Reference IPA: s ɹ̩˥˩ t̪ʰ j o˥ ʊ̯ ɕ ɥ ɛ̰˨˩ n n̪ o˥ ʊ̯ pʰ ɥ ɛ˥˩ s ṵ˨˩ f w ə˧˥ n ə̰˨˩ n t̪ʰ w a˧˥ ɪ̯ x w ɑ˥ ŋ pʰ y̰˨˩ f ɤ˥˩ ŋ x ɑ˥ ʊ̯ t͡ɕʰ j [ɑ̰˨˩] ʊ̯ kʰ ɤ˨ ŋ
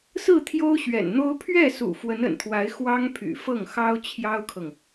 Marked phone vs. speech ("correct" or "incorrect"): incorrect